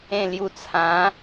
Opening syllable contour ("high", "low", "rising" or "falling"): falling